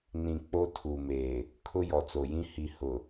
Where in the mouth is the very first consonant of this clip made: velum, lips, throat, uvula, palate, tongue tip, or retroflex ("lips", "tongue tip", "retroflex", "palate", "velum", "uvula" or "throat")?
tongue tip